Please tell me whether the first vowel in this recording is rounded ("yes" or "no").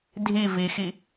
no